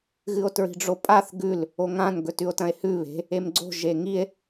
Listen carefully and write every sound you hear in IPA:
ɣɨo̯tɹi̤ɖ͡ʐopʼaθ ɡʉl | oŋãn ɡɵtʉo̯tɐ̃e̯hʉ βe̤ | emɡ͡ǀo̤ ʒeŋie̯

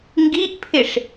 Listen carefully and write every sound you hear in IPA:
ŋɡiʔpʰɪʂ

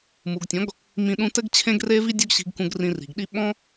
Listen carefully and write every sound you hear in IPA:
mu˨ɡtʲɔ̃˨˦ɡ | mĩ˧ ɗũ˧tɘ˦ɡ t͡ɕʰẽ˦ɡre˦vi˦ dʲɔ˦ɡɕi̤˧ɡkũ˧ɡ rĩ˧ri̤˨ɡɗi˦ ɓɔ̃˦

